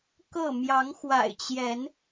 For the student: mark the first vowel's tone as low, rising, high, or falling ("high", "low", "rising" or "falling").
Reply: falling